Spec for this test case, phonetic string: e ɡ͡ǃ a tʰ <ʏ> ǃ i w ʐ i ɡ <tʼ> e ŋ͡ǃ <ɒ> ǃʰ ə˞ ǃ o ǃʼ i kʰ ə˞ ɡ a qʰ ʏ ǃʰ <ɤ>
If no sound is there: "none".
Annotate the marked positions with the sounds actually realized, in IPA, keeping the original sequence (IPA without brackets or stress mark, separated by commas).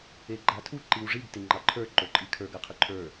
u, t, ɑ, ə˞